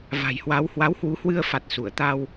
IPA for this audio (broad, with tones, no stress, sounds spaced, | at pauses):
v a̤˨˩ j h w a˨˦ w h w a˨˦ w h w u˨˦ h w ɨ˧ ə̯ f a˨˩ t̚ s u˧˩ ə̯ t̪ a˧ w